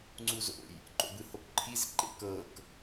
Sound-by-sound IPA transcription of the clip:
ŋ͡ǀuzo̰j | ǃo̰bɯhokǃʰiz ǃḛkɤk

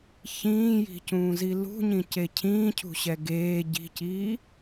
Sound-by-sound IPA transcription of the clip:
çĩːji̤cũːzi lṳɲĩce cʰĩːcʰṳɕɛ ɡeː ɟi̤ciː

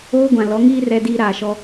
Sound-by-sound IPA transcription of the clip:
oː˦ɡʷã˨ lɔ˨˦ŋiː˦ rɛ˦diː˦ɾaː˨ʃɔ˦

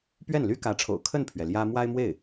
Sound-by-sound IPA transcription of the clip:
pɥɛ˥˩nly˥kä˧˥ʈ͡ʂʰo̰˨˩ʊ̯ kʰə˥˩npʰɥɛ˩ ljä˥ mwa˥ɪ̯mwe˥˩ɪ̯

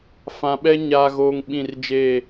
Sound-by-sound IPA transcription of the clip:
fã˨ɓɛ˦ ɲaː˨ɣoː˨ŋ ɓĩ˦˨r d͡ʒeː˦˨

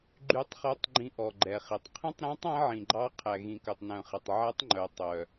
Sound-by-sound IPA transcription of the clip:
ɡ͡ǃy˦˥tˤχœ˦˥tˤɡ͡ǃĩ˦˥ ʔɔ˧ɡ͡ǃɛ˧χi˧tˤ qʰĩ˦˥tˤɾæ̃˦˥tˤ æ̃˦˥ʕĩ˧ɡ͡ǃɑ˦˥ qʰæ˧ɣĩ˧kœ˧tˤ nœ̃˧χe˧tˤ ʕæ˦˥tˤŋ͡ǃœ˧ tˤœ˧

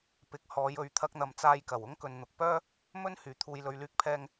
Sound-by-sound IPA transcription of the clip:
pɪ˨k̚hɔː˨˧jɵ˨˧ɥ t̪ʰɐ˧k̚n̪ɐ˨mt͡saː˧jkɐ˨˩w ʊ˥ŋkɵ˨nn̪ʊ˨k̚pœː˥ | mɵ˥n hyː˨t̪ʰuː˧jlɵ˧ɥ lyː˥k̚pʰɛː˥ŋ

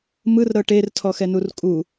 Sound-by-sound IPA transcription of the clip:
mɯrɾɤ ʈertʰɔxɛnur kʼu

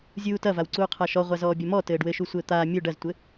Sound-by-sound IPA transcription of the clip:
zʲuːtɐvaw ǀuːqʰaʃɔ ʁʷazɔːbʲɐmɔ tɘːɖwɘʃu sʷɘːt̪aː mʲu ɖɐztʷɘ

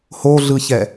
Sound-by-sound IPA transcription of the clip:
hoɮɯçɛ

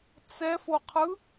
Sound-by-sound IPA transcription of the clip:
t͡sɛfoqʰɯ

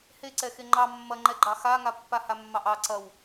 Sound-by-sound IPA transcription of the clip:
heǀɛ xeŋ͡ǃɑ mːɐŋ͡ǃɛɡ͡ǃɑ xaŋa pːahamːɑʔɑ ǀɐw

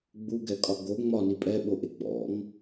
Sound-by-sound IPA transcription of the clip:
ɡ͡buɡɛkʼɒ ɡo ŋ͡mɒni pʼɛɓoʔe ɡ͡bɔ̰ŋ

